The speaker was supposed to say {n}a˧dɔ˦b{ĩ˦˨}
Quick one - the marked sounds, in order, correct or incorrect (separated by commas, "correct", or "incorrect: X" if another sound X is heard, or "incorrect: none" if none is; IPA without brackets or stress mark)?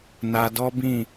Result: correct, correct